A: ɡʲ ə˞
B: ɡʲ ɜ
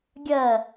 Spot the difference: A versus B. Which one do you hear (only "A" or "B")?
B